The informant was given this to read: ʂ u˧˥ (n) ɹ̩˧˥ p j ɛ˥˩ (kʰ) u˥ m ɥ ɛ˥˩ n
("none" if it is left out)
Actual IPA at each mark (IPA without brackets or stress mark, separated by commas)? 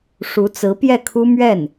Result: t͡s, kʰ